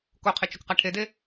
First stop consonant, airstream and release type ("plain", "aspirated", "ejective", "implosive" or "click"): plain